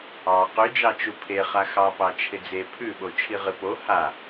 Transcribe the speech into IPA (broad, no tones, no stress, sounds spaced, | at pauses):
ɑ q ʉ d͡ʒ ɑ t͡ʃ u pʰ e χ a x ɑ p ɑ t͡ʃʰ ɪ d͡z e pʰ ʉ ɓ o t͡ʃʰ i ʁ ɨ p o h a